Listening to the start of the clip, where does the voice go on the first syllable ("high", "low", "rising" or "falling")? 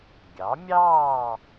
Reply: rising